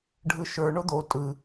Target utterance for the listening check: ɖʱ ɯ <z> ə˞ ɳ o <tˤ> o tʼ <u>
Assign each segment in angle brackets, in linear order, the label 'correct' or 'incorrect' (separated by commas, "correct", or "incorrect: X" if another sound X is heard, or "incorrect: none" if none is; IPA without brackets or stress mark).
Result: incorrect: ʃ, incorrect: d̪, incorrect: ɯ